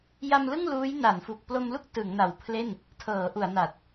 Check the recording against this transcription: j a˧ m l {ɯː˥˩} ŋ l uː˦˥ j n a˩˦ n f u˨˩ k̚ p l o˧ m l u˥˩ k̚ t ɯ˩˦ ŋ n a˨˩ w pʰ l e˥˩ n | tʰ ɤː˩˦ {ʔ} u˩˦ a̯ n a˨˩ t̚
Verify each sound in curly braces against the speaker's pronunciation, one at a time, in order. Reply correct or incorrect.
incorrect: ɯ˥˩, correct

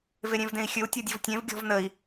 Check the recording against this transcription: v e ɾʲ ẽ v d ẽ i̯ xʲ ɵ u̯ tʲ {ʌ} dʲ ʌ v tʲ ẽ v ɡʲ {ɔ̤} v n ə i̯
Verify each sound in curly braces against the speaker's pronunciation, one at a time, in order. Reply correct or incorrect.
incorrect: ɔ, correct

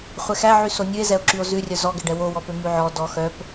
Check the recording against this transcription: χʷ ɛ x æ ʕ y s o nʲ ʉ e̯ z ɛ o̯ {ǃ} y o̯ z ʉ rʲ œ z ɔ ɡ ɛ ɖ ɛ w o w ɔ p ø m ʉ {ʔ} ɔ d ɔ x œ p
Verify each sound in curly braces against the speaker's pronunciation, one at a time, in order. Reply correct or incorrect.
incorrect: ǁ, incorrect: ʕ

